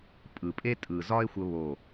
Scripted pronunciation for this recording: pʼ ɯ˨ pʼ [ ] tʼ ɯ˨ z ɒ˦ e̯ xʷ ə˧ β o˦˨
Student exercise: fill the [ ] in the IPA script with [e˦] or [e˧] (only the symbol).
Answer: e˦